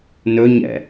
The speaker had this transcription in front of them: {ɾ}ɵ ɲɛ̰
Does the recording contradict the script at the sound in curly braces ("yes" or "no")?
yes